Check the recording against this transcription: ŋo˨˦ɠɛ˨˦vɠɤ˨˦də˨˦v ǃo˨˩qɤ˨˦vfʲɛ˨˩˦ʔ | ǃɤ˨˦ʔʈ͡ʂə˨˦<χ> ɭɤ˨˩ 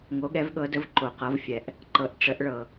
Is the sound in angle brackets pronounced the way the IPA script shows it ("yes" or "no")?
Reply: no